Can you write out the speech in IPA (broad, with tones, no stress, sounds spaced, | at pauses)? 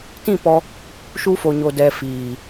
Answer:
t ĩ˦˨ p ɔ˧ | ʃ u˧ f o˨ ɲ o˨ d ɛ˨ f iː˨